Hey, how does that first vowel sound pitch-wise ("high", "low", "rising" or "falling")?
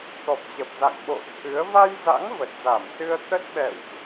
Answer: low